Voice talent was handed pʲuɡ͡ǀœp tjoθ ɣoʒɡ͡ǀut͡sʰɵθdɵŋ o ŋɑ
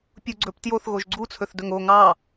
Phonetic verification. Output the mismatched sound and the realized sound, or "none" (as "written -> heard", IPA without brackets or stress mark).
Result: œ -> ɵ